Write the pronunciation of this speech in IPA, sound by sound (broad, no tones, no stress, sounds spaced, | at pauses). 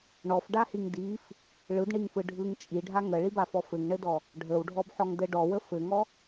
ɳ ɔ f ɖ a h i ŋ d i f | ɭ ɯ d ɳ i ŋ f ɯ ɖʱ ɯ ŋ t͡ʃʼ i ɖʱ a ŋ ə ɭ i b a f ɔ f ɘ ŋ ɳ ɘ d ɔ | ɖʱ ə w ɖʱ ɔ b ħ ɔ ŋ d ɘ ɖ ɔ w ə f ɘ ŋ ɔ